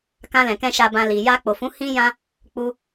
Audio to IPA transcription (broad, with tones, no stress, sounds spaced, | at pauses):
k ã˧ l ɛ̃˨ k ɛ̃˧ ʃ a˨ b ã˨ l i˨ j a˧ k͡p o˨ f ũ˨˦ h ĩ˧ j ã˧ | k͡p u˧